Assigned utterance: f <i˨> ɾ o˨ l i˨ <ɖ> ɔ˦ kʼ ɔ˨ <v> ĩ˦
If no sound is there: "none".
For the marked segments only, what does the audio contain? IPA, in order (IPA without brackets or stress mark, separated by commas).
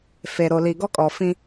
e˨, ɡ, f